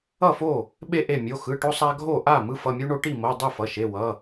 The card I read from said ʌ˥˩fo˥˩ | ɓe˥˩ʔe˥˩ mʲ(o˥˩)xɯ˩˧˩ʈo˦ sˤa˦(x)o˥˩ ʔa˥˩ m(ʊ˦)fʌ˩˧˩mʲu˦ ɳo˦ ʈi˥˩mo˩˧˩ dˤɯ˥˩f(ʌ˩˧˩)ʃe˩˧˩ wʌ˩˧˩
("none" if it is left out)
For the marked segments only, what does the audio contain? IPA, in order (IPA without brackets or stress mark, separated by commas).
o˩˧˩, ɡʱ, ɯ˦, ʌ˩˧˩